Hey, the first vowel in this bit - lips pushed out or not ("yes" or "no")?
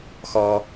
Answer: yes